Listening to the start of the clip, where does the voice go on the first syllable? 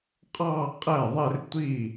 falling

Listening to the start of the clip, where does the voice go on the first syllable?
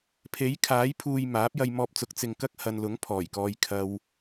rising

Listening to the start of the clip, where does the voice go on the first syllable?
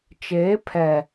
rising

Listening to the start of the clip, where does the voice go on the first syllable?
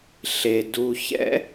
low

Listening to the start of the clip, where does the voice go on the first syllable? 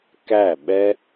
falling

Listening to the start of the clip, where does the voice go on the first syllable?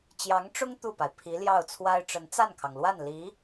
rising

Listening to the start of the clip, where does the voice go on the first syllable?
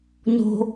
high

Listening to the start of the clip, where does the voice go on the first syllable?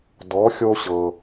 rising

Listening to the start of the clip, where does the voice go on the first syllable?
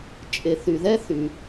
low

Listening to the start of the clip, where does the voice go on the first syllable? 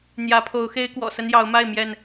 rising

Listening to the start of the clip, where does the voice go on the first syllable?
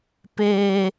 high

